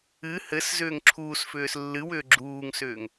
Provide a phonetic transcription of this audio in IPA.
ɨ h ɘ s z ʏː ŋ ǁʰ uː s f ʏː s lː ɨ w ʏː ɡ͡ǁ uː ŋ s ʏː ŋ

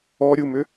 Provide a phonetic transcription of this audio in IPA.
ɔ ɾʲ u m ʏ

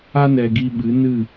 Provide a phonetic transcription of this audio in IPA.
a˧ n ɛ˨ ɡ i˧ ɓ ɨ˨˦ n ɨ˦˨

